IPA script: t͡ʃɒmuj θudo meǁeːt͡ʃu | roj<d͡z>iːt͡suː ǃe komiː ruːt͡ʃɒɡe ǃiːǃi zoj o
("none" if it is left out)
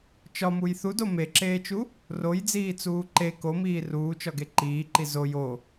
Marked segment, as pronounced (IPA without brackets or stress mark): d͡z